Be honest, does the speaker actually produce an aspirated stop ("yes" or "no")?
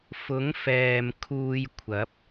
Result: yes